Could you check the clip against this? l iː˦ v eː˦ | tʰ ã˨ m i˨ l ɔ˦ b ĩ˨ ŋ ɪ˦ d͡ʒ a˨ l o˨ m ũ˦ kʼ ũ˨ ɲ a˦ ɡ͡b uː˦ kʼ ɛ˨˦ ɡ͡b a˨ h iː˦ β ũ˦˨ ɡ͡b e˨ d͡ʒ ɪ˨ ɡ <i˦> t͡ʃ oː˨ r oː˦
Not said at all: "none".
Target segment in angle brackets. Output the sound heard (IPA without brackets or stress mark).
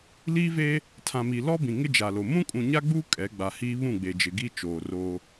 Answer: i˦